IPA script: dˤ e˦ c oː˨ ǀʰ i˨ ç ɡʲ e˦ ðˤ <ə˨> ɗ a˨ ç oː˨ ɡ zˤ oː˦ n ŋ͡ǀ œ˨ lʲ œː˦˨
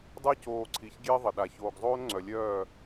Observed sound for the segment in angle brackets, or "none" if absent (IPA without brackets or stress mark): ə˨